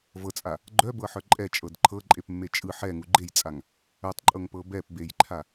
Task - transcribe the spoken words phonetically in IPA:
v ɤ t͡sʼ a | ɡ͡ǃ œ b ɤ ħ œ ǃʼ ɛ t͡ʃʼ ɤ d ǃʰ ɤ ǃʼ e p mː e t͡ʃʼ ɯ ħ ɛ ŋ u ɡ͡ǃ e j t͡sʼ a ŋ | œ tˤ ǃʼ ɤ ŋ p ɤ b ɛ p b e j ǃʰ a

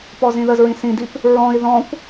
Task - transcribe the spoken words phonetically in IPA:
p ɔ z ĩ ð ə z ɹ ĩ s ĩ d i p | ɹ ɔ̃ i̯ ð ɔ̃ kʷ

